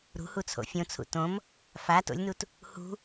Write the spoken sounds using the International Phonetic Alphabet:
ɾ ṳ h u t͡sʰ o̰ fʲ õ t͡sʰ ṵ t õ m | f a t o̰ lʲ n u t | h ṳ

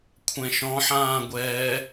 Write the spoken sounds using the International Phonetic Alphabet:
kʷʰ ɛ̃ ʃ ɔ̃ ħ ãː ɡʷ ɛː

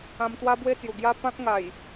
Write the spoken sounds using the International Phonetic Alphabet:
ã˧ m t̪ w a˦ b w e˥˧ t͡s j u˨˩ ɡ j a˦ p ã˦ k̚ ŋ a˨˩ j

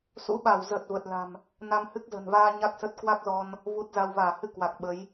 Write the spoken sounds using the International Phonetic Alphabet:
s ṵ˧˥ ɓ a˧˩ w z ə˨˩ t̚ v ə˨˩ t̚ l a̤˨˩ m | n a˧ m h ɨ˦˥ k̚ z ə̤˨˩ n v aː˧ ɲ a˦˥ k̚ s ə˦˥ t̚ k w a˦˥ k̚ z ɔ˧ n | v u˦˥ t̚ z a˧ w v aː˧˩ h ɨ˧ k w a˨˩ k̚ ɓ ə˨˦ j

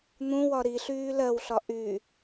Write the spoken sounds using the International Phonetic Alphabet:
n̪ ũ w ɒ ɾ i ɬ yː l ɜ w ɬ ɒ ʔ y

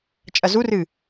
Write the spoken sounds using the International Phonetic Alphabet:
t͡ʃʼ ɐ z u r ɨ

